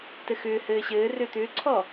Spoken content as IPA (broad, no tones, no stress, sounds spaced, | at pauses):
t ɘ x ʏː h ɘː ɕ ɘː r ʏː t̪ ʏː ǀʰ ɔ